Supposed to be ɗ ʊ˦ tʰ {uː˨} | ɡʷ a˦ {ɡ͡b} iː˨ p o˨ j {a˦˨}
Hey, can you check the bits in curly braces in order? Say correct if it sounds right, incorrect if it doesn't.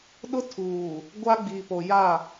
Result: correct, correct, correct

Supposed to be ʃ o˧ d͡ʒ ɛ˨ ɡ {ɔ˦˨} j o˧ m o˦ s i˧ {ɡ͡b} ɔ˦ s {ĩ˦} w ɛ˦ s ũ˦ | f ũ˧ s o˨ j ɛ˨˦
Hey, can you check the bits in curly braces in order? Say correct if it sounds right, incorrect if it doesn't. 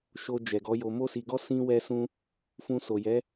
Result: incorrect: ɔ˨˦, incorrect: ɡ, correct

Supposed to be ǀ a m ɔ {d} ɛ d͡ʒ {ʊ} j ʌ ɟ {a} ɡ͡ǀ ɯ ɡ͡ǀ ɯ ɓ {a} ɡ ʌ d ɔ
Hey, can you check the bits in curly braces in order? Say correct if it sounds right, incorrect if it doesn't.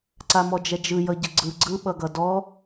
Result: incorrect: d͡ʒ, incorrect: ɯ, incorrect: ə, incorrect: ʌ

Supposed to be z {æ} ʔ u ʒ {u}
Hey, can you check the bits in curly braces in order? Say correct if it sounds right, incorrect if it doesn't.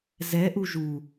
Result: incorrect: ɛ, correct

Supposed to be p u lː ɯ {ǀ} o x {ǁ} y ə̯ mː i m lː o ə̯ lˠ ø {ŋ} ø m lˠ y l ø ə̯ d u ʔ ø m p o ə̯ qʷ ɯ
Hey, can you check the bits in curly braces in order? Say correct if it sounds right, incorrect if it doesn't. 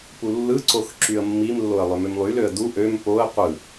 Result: correct, correct, incorrect: m

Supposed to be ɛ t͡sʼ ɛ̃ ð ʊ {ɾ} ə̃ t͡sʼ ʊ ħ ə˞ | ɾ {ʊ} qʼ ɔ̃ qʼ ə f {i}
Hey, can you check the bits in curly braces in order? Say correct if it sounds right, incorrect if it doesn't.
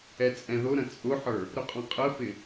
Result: correct, correct, incorrect: ɪ

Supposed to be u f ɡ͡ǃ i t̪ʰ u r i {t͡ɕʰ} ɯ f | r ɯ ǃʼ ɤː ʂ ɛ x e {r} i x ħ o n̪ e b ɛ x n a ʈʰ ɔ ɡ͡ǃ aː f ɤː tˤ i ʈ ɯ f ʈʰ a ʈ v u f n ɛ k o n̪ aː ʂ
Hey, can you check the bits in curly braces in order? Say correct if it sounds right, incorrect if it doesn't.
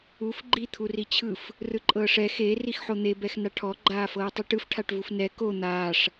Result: correct, correct

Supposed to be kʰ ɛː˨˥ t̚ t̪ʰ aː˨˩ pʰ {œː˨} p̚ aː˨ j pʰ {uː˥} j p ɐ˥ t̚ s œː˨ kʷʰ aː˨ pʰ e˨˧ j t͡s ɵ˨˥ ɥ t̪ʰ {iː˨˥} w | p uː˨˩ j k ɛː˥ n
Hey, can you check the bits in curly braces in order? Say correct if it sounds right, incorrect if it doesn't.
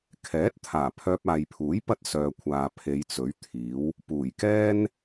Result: incorrect: œː˧, incorrect: uː˨˥, correct

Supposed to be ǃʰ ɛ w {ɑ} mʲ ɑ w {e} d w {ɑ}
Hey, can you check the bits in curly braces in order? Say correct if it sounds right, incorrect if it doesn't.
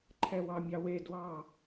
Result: correct, correct, correct

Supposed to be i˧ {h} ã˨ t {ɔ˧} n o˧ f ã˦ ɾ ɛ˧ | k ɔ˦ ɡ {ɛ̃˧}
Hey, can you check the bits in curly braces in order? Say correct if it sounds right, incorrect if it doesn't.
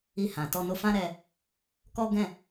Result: correct, correct, incorrect: ɛ̃˦˨

